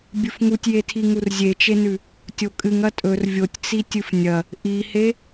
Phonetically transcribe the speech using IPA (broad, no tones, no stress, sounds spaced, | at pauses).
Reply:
bʲ ɨ f ŋ u tʲ j e tʰ i ŋ u r zʲ e t͡ʃ e n ʉ | tʲ o kʼ ɨ ŋ ɐ tʼ ɵ r vʲ o tʲ t͡s i tʲ ɨ f nʲ ɐ | ʔ i h e